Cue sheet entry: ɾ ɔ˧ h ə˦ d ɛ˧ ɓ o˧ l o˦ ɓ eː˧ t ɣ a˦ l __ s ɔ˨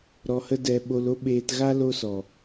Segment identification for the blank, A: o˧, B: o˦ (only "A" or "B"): B